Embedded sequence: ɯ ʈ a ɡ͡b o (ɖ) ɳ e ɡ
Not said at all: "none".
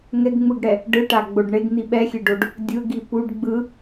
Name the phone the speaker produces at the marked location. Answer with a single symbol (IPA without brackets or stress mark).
ɖ